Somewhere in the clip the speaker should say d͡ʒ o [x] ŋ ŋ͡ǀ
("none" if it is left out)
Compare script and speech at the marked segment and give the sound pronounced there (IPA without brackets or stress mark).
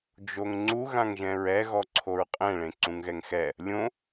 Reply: none